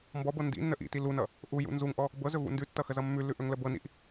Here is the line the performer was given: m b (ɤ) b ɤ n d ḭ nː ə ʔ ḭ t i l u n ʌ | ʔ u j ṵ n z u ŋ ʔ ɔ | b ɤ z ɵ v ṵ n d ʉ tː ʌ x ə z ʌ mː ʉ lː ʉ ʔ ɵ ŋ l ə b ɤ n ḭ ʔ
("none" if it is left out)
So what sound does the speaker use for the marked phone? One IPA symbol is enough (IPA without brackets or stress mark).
ɔ